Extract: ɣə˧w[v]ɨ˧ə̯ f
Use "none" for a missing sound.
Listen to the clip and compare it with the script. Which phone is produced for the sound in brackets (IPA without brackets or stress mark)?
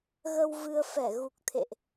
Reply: v